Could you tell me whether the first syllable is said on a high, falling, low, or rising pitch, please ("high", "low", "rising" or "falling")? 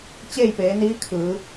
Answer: falling